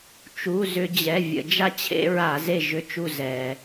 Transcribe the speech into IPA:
t͡ʃ u˩˧˩ z ʏ˧˩˧ d͡ʑ ɛ˩˧˩ vʲ ə̰˧˩˧ d͡ʒ a˦ t͡ɕʰ ḛ˦ ɹ a˧˩˧ z e˦˨ ʒ ʏ˦˨ t͡ʃ u˦˨ z ɛ˩

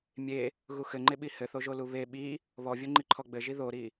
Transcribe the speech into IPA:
mʲ e | ɣ u x ɘ ŋ͡ǃ e ɓ i h ɘ θ o ʒ o l u β e ɓ i | β ɔ vʲ o ŋ͡ǃ i ǃʰ ɔ ɡ͡b ɘ ʒ i ð o ɾ i

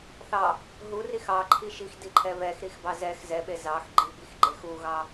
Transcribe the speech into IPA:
θ ɑ | ɦ u r i x ɑ ǃʰ i ʃ i x d i ǃʰ ɛ β ɛ x ɾ i x b ɑ z ɛ x z ɛ ɓ e z ɑ x ɡ͡ǃ i b i x ɡ͡ǃ e x u ɣ ɑ

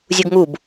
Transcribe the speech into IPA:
zʲ u ɡ ŋ u b

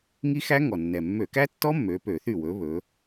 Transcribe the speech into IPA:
ŋ i˦˥ x æ˦˥ ŋ ɔ˨˩ nː ɛ˨˩ mː ø˧˩˧ k æ˦˥ tː ɔ˦˥ mː ø˨˥ p ø˧˩˧ θ y˥˩ w ɵ˨˥ β ɵ˨˥

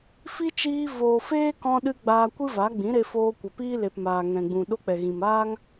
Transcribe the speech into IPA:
f i˦ t͡ʃ iː˧ v oː˨ f eː˦ k ɔ̃˧ ɗ ɨ˧ ɡ͡b aː˧ kʷ ɨ˦ v a˨˦ ɡ͡b ĩ˨˦ ɾ e˧ f oː˧ kʷ ə˨ p iː˦ l e˨ p m aː˨ ŋ ɛ̃˨ ɡ͡b ũ˨ ɗ o˦ k͡p ɛ˨ ɣ ĩ˨ m aː˦ ŋ

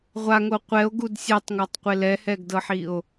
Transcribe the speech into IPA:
ʁʷ a ŋ o qʷ ɛ o̯ ɡ u d sʲ ɛ tˤ ŋ ɔ tˤ qʷ e l ɛ h ɛ ɡ d ɤ ħ i o̯

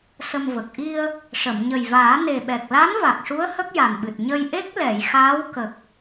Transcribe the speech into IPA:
s ə˧ m v ə˨˩ k̚ ʔ i˧ ə̯ | ʂ ə˨˩˨ m ɲ ə˨˩ j v aː˨˩˦ n e˨˩ ɓ ɛ˨˩ k̚ l a˧˥ n v a˨˩ k̚ ʂ u˧˥ ə̯ h ə˦˥ k̚ j a˨˩ n ɓ ɨ˨˩ t̚ ɲ ə˧ j ʔ e˦˥ k̚ l ɛ˨˩˨ j x aː˧˥ w k ə˨˩ k̚

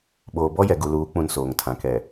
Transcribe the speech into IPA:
ɓ oː˨ b ɔ˦ j ɛ˨ ɡ u˨ l uː˨˦ k͡p ũ˨ n s oː˨ ŋ tʰ ã˨ k ɛ˨

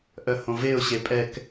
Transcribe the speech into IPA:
ʔ œ h õ v e ʊ̯ ɕ e pʼ ɛ k

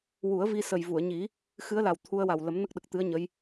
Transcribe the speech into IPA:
w u˨˩˦ ə̯ v i˧ s ə˨˩ j v u˨˩˨ ə̯ ɲ i˨˩˦ | x ɨ˧˥ ə̯ l a˨˩ w t̪ʰ u˧ ə̯ w a˨˩ w l ə˨˩˦ m n ə˦˥ k̚ ɗ ə˨˩ k̚ t̪ ɨ˧˥ ə̯ ɲ ə˧˥ j

